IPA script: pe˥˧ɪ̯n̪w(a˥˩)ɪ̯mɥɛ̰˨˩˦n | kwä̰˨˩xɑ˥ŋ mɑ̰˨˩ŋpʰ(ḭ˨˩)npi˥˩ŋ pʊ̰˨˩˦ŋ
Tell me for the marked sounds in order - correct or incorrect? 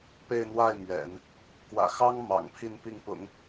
correct, incorrect

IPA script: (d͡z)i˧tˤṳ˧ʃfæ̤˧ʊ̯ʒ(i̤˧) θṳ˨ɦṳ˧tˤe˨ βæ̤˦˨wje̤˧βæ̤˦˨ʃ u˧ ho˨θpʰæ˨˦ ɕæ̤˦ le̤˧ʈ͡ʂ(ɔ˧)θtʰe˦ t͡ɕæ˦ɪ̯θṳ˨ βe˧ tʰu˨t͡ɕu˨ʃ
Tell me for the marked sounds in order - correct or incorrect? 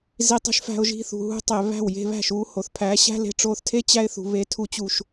incorrect, correct, incorrect

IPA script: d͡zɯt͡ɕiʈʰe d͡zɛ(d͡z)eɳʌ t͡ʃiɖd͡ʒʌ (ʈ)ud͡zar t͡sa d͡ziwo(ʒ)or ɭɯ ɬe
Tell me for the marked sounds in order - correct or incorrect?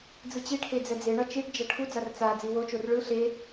correct, incorrect, incorrect

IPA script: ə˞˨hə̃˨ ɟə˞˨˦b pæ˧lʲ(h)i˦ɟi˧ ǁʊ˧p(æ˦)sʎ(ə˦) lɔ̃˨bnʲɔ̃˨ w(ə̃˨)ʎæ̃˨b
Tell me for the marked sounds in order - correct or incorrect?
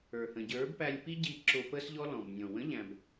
incorrect, incorrect, incorrect, incorrect

